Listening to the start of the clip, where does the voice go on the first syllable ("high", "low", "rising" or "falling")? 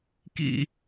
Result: falling